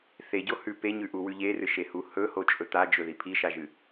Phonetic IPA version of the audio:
θ e ɟ o h ʉ p e ɲ ʉ ʔ u w ʉ ʎ e r ɨ ʃ e h u h ɵ h o t͡ʃʼ ɵ t̪ a d͡ʒ ɵ ð i pʰ i ʃ a ʒ ɨ

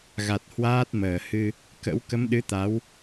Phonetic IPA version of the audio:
ɣ a˨˩ t̚ h w aː˦˥ t̚ m əː˧˩ h ɨ˧ | k ə̰˧˥ w k ə˨˦ m ɗ ɨ˨˦ t̪ a˨˦ w

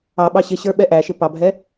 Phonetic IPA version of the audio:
ɑ ɓ ɑ ɕ ɪ ɕ ə˞ ɓ ɛ ʔ æ ʃ ɪ p ɑ bʱ ɛ

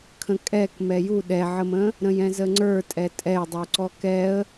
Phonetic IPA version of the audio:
kʰ ə̃ kʼ ɛ k m ɛ j u ɗ ɛ ʕ ə m ə̃ | ɾ ə̃ j ɛ̃ z ə ŋ͡ǀ ə˞ tʼ ɛ tʼ ɛ j dˤ u ǀ ɔ k ɛ ə̯

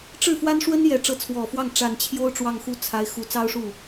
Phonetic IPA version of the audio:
ʈ͡ʂ ɻ̩˥˩ f w a˥ n ʂ w ə˥ n j ɛ˧˥ ʈ͡ʂ ɤ˧˥ t͡sʰ w ɔ˨˩ f w ɑ˥˩ ŋ ʈ͡ʂ a˨˩ n t͡ɕʰ j o˥ ʊ̯ ʈ͡ʂ w ɑ˥˧ ŋ x u˥˩ t͡sʰ a˧˥ ɪ̯ x u˨˩ t͡s ɑ˥ ʊ̯ ʂ u˥˩

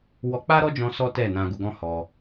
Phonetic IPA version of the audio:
w ɔ˧ k͡p a˦ ɾ ɔ˦ d͡ʒ ɔ̃˧ s ɔ˦ t ɛ˦˨ n ã˧ ɡ u˧ ɡ ɔ̃˦ h ɔ˧

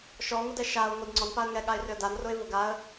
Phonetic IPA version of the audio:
ʃ ɔ ŋ ʊ d ɛ ʃ a ʊ̯ ŋʷ ɛ d ŋ͡ǀ ɔ n p a ə̯ ŋ ɛ ɠ a ɪ̯ r ʏ ə̯ d a n r ʊ ɪ̯ v ʊ ɡ a ə̯

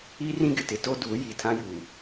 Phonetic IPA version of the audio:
iː˦ r ĩ˦ ɡ ɪ˨ t ɪ˦ t o˦ d uː˨˦ j i˨ tʰ ã˦ j uː˨

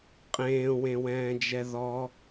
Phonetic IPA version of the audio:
qʼ ẽː w ẽ w ɛ̃ː d͡ʒ ɛ ð ɔ

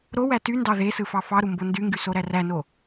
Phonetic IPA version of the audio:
ɾ o w æ t y n d ɑ ð e s ɯ f ɑ f ɑ ɾ u m b o n d y ŋ ɡ y s o ɾ æ r æ n o

